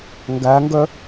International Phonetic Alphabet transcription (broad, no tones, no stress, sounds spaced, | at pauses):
ŋ ɡ æ ŋ ɡ œ